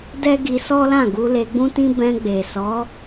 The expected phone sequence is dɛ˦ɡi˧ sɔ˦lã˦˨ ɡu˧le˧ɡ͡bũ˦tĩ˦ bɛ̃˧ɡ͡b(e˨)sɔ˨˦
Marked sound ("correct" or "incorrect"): correct